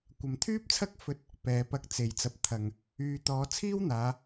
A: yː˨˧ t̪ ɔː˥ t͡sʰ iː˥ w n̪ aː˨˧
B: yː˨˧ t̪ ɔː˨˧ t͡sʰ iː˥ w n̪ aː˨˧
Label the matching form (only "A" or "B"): B